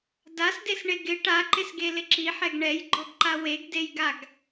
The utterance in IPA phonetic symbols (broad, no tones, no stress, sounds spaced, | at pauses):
d a s d e s ɳ e ɡ ɪ ʈ a ǃ ɪ s ɡ e l ɪ ǁ i ħ ɛ ɡ ɳ ɛ j ɡ͡ǃ ɔ ɡ ǃ a w e ɡ d e j ɡ a ɡ